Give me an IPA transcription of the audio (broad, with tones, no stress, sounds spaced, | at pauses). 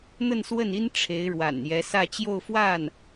n̪ ə˥˧ n s w ə˥˩ n i˥ n ʈ͡ʂʰ e˧˥ ɪ̯ ɻ w a̰˨˩ n j ɛ˧˥ s ä˥˧ t͡ɕ j o˥˧ ʊ̯ f w a˥˩ n